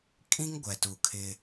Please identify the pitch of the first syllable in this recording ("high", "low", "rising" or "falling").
high